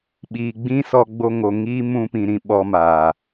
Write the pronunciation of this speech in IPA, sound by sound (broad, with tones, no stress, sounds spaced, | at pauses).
ɓ iː˨ ɡ͡b ĩ˦ s ɔ˧ ɡ͡b o˧ ŋ o˨ ŋ iː˦ m ũ˧ p ĩ˨ ɾ ĩ˨ ɓ ɔ˧ m aː˨